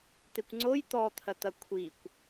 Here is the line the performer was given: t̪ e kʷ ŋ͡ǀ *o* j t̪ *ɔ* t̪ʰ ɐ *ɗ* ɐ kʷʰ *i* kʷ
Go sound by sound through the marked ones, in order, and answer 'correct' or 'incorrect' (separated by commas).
correct, correct, incorrect, correct